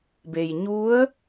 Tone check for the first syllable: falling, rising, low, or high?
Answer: low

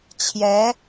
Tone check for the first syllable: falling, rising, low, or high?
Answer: rising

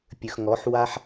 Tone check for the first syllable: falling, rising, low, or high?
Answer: low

